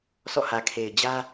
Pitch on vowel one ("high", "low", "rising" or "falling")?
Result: falling